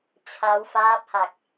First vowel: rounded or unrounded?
unrounded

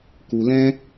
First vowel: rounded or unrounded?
rounded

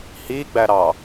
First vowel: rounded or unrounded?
unrounded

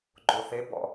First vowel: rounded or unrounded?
rounded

